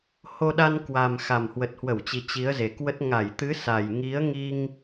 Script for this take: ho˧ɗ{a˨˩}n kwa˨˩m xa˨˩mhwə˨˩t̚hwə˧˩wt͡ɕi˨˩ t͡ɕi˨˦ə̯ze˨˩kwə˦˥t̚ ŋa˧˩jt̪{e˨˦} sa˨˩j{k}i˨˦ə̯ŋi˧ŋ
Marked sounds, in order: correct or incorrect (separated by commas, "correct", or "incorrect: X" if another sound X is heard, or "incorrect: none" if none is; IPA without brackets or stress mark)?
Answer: incorrect: a˧, incorrect: ɨ˨˦, incorrect: ŋ